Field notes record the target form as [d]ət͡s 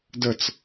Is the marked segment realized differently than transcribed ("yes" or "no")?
no